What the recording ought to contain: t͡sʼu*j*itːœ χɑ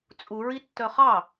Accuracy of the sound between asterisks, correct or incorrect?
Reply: incorrect